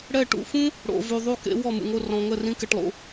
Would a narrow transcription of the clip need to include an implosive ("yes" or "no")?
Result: no